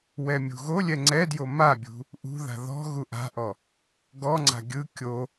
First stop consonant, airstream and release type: click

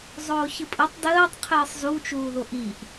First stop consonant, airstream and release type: ejective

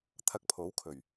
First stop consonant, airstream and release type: aspirated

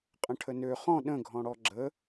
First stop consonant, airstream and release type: ejective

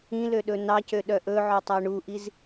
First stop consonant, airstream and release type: implosive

